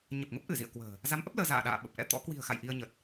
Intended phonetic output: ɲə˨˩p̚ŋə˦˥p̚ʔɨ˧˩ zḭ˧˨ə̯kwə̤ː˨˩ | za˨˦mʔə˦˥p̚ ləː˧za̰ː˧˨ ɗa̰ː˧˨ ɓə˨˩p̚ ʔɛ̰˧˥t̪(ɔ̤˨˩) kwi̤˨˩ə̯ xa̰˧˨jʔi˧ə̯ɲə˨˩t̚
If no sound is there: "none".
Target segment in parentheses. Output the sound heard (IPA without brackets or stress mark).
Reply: ɔ̰˧˥